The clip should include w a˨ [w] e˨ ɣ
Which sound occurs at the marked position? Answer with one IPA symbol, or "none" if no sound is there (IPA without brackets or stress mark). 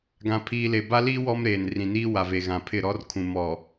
v